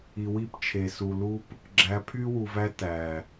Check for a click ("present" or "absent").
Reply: present